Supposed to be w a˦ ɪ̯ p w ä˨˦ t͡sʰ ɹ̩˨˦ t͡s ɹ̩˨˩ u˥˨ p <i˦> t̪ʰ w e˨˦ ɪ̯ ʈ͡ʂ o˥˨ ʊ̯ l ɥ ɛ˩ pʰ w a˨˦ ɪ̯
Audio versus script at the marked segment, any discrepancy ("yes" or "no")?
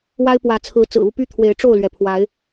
yes